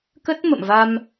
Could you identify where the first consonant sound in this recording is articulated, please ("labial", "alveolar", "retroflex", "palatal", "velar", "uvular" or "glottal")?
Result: velar